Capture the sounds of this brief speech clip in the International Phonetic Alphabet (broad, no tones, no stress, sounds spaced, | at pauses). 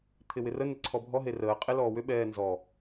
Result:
t̪ʰ ɪ w ɪ r ə n ɪ ǀʰ ɔ bʱ ɔ ɦ e r əː qʼ e l ɔː w ʏ ɓ ɛː n z ɔ